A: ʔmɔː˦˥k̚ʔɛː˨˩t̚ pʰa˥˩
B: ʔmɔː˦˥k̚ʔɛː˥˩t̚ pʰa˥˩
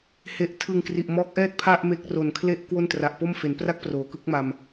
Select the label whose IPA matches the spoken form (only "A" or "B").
B